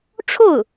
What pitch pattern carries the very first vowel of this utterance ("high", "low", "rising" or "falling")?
falling